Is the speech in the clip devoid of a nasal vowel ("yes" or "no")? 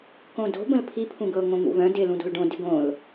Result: no